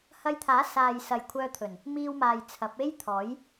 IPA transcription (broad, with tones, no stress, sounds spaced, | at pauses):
h ɐ˧ j t̪ʰ aː˨˥ s aː˨ j s ɐ˨ j kʷʰ œː˧ t̪ʰ ɵ˨˩ n | m iː˧ w m aː˨ j t͡sʰ ɐ˨˥ p̚ e˥ j t̪ʰ ɔː˨˥ j